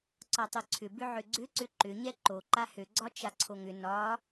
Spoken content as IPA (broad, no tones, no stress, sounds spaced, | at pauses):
ǀ ɒ tˤ ø ǀʰ ʏ b ʏ ʕ ʏ ɡ͡ǀ ʏ ǀ ʏ ǃ ʏ ɲ ɛ ǃ o ǃ a h ø ɡ͡ǀ ɒ t͡ʃ a ǀʰ o ŋ ʏ n ɒ